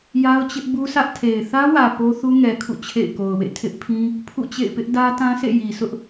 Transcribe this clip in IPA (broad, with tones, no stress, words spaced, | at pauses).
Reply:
ja˦ʊ̯t͡ɕɪ˦ʔ bu˦sʰä˦ʔ tʰe˨ɪ̯ θä˦wä˨ po˦θu˦ŋɛ˨kʰṵ˦˨ t͡ɕʰḛ˦˨ɪ̯ko˨ʊ̯wḛ˦˨ tʰɪ˦ʔpʰĩ˦ | pʰṵ˦˨t͡ɕḛ˦˨ɪ̯pɪ˦ʔ dä˦tã˦sʰḛ˦˨ ji˨ sʊ˦ʔ